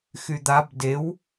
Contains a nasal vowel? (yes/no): no